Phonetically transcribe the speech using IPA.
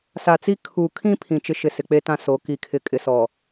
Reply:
sa˨t͡si˦ kʰu˨kʰĩ˦ pʰĩ˨t͡ʃɪ˦ʃɪ˨ sɪ˨k͡pe˦tã˦ so˨˦ ki˨kʰɪ˨kʼɪ˨sɔ˨

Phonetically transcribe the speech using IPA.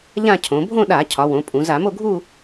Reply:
ʎã˥˧cʰõ˩˧ bʱõ˥˧ɗa˧˩˧ cʰɒ˩˧ wõ˩˧pʼũ˩˧ za˧˩˧mo˥˧ ɡʱu˥˧

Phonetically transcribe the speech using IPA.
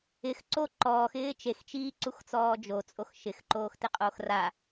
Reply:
ɪxǀo ǃɔːxɪː t͡ʃext͡ʃiːǀuxt͡sɔː d͡ʒot͡sʼox ʃɪxǃoːxtɪqʼox ra

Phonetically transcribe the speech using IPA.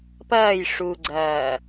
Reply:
pɐːj ʂuɡ͡ǀɐː

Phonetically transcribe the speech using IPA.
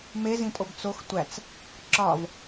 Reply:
mezĩtʼob t͡sox tʷæt͡s | ǁɒv

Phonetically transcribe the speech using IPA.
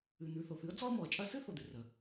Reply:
ɨ˩n̪ʉ˩ θo˩θɨ˥ə̯ d͡zɔ˥ə̯mɔ˩ə̯t͡ʃʼɐ˥ sɨ˥θo˩d̪ɨ˩ rə˩

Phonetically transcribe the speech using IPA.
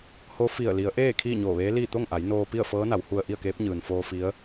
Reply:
ho˧˥fi˧˩ə̯ li˩˧ə̯ʔeː˥˨ kʰiː˥˨ɲoː˧˩ʋeː˧˥liː˥˨ t̪o˥˨ŋʔa˩˧j noː˧pi˥˨ə̯ fɤː˧˥na˩˧whu˧ə̯ ʔi˥˨ə̯keː˧˥p̚ ɲɯː˩nfoː˧ fi˧˥ə̯

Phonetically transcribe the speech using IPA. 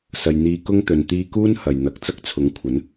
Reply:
sɐ˨j n̪iː˧kʊ˥ŋt̪ɵ˨n t̪iː˧kuː˥n hɐ˨˩jn̪ɐ˨k̚ t͡sɐ˥k̚t͡sʰʊ˨˥ŋkʷʰɐ˨˥n

